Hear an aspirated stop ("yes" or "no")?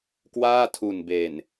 yes